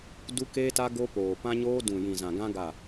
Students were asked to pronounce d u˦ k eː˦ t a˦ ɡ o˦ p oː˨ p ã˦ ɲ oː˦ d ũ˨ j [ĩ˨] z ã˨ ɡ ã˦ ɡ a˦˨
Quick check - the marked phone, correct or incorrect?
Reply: correct